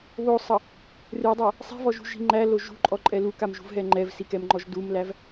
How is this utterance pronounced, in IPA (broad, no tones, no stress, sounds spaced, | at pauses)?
β o sˤ ʌ | r ɨ dˤ æ | sˤ i̤ v ɔ ʒ ṳ ʒ i̤ ŋ͡ǃ æ l o ʒ ṳ ǃʼ ɔ ǃʼ ɛ l u k a m ʒ ṳ v ɦ ɛ ŋ͡ǃ ɛ v s i k ɛ m ŋ͡ǃ ɔ ʒ d u m l æ v